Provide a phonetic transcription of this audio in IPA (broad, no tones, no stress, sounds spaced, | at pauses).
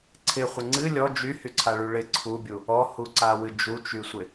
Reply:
ǀʰ ɪ χʷ ɪ ŋ͡ǀ ɨ lʲ ɔ d͡ʒ y h y ǀʰ a ɭ y ɭ ɪ ǀʰ u bʲ u | ɔ h u ǀ a w ɨ d͡ʒ u t͡ʃ y sʷ ɪ